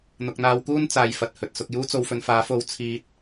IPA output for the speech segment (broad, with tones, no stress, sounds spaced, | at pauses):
n̪ ʊ˨ k̚ n̪ aː˧ w k uː˥ n t͡s aː˨ j f ɐ˨ t̚ h ɵ˨ t̚ s ʊ˧ k̚ j uː˥ t͡s o˧ w f ɵ˧ n f aː˨˥ f o˧ w t͡sʰ iː˧ t̚